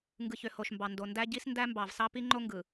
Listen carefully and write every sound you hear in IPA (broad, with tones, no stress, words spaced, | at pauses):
ŋɡɯ˨çø˨ ho˨ʃmbɑ˨ndo˨ ndæ˦ɟi˦s ndæ˦mbɑ˨vsɑ˦ pi˦ŋ͡ǃo˦ŋɡɯ˨